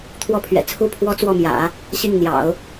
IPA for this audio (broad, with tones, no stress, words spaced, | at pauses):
t̪ʰwɔ˥˩pʰɥɛ̰˨˩ t͡sʰu˥pʰwɔ˥ t͡swɔ˥˩mjä̰˨˩˦ | ɕi˥˩ŋn̪jɑ̰˨˩˦ʊ̯